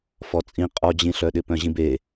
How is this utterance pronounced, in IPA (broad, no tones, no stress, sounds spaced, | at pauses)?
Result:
f ɔ t͡sʼ ĩ qʼ ɔ d͡ʑ ĩ ɬ œ ɗ ɪ p œ̃ ʑ ĩ b e